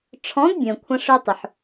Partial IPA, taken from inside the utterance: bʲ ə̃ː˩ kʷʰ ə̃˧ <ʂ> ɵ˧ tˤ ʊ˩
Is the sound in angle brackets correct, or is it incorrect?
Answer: correct